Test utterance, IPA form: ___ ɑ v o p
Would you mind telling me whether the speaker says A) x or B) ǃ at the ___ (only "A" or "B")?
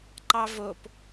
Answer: B